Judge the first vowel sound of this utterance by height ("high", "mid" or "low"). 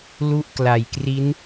high